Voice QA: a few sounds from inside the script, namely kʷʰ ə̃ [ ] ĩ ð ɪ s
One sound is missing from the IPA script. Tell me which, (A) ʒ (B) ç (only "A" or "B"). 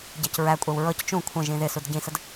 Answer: A